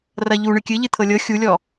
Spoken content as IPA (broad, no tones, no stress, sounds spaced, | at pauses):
r ɐ ʎ u ɳ ɨ kʲ ɨ ʎ ɨ t̪ʰ ɤ lʲ ɤ xʲ u lʲ ɔ